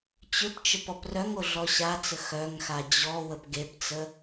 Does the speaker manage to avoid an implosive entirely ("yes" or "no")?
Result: yes